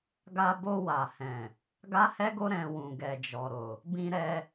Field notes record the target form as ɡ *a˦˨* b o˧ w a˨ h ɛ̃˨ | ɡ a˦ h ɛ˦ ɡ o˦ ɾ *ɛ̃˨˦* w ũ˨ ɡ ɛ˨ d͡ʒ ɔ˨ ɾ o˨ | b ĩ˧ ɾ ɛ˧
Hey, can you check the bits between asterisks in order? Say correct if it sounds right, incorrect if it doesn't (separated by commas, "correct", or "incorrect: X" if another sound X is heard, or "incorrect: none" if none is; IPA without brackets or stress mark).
incorrect: a˧, incorrect: ɛ̃˧